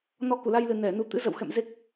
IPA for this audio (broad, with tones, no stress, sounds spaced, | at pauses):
n ɔ˧ k u˧˩ l a˧ j l ɨ˨˩ n ɛ˧˩ n u˧ t̪ ɨ̰˧˥ z ə̰˧˨ w x ɛ̰˧˨ m z e˦˥ k̚